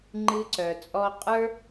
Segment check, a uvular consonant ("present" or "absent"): present